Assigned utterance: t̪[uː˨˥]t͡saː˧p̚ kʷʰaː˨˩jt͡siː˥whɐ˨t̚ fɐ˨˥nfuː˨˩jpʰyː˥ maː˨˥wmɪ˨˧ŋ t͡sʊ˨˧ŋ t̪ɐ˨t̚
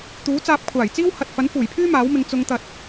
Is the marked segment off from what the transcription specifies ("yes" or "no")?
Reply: no